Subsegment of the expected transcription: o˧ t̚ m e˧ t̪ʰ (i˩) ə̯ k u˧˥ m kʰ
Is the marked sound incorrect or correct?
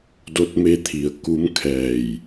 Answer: correct